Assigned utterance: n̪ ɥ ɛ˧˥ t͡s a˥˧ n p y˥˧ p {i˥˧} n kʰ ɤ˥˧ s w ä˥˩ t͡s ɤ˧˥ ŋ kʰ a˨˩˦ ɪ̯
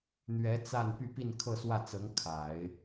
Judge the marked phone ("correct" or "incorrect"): correct